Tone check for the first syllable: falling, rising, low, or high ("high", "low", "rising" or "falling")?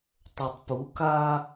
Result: low